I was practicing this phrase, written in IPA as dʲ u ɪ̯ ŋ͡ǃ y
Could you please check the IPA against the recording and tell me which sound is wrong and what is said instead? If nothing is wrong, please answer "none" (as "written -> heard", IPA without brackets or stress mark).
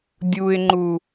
y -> u